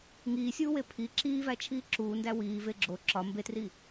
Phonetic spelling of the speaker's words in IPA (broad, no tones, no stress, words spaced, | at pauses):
ŋiːsʲuːwe pʰi ǁiːvæt͡ʃʰiː ǁuːndæ wiː veɡ͡ǁo ǁɒ mbetriː